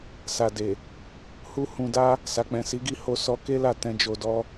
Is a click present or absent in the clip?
absent